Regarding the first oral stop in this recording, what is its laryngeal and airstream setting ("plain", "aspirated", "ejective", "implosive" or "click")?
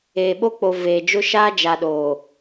implosive